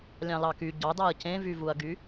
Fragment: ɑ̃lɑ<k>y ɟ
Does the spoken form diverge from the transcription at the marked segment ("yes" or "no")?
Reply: no